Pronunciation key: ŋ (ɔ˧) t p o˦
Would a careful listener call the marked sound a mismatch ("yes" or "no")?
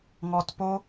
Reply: no